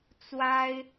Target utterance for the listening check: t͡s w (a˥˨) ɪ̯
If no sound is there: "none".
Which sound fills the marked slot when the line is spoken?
a˦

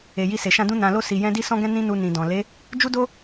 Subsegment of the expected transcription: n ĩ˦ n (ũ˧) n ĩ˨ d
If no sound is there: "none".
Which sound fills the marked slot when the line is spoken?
u˧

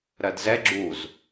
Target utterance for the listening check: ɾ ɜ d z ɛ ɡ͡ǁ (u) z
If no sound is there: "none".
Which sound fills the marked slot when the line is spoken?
u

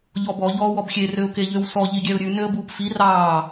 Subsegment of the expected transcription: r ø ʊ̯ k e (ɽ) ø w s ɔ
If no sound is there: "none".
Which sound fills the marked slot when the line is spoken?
ʎ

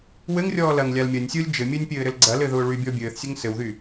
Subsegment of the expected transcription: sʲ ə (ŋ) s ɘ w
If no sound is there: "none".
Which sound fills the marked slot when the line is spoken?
ŋ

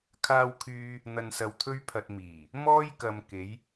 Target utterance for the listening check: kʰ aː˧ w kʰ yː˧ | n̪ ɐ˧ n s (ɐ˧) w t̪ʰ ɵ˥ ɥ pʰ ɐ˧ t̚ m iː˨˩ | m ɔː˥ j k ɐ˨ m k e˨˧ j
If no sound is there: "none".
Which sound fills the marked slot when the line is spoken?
ɐ˧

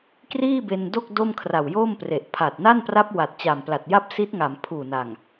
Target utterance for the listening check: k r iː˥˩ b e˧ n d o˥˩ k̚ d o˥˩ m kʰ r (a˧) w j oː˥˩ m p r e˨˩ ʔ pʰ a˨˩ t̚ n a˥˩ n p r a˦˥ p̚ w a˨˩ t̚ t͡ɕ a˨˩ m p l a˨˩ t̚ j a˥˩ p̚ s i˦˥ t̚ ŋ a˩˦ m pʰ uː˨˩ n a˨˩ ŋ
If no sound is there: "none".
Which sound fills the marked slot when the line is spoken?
a˨˩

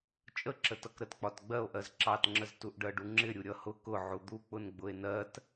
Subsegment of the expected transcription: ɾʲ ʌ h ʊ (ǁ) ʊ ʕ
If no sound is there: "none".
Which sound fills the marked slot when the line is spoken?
k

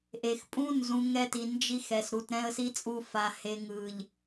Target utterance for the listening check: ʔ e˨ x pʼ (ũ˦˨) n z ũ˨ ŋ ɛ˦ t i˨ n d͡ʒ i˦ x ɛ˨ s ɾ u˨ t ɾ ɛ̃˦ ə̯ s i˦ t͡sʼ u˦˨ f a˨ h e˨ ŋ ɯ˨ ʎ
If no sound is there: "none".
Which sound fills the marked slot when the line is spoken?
ũ˦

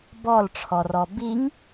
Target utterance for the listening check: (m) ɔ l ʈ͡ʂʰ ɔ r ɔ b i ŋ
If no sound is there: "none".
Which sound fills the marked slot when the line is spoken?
b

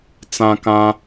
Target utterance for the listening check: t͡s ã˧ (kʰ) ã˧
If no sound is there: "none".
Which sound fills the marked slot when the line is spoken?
k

